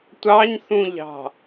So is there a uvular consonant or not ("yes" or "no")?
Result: no